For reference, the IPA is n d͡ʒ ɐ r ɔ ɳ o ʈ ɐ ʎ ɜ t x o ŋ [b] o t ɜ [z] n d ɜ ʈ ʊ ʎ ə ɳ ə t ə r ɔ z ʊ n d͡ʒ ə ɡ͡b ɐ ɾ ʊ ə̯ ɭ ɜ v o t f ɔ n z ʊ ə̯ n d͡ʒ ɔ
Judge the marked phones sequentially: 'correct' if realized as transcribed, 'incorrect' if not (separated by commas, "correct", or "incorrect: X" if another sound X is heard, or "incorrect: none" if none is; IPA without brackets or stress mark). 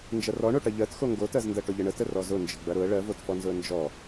incorrect: ɡ, correct